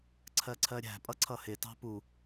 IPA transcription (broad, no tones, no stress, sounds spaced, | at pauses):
ǀʰ ɜ ǀʰ ɜ ɾʲ æ̤ pʼ ʌ ǀʰ ʌ h ɪ t ɑ̤ p u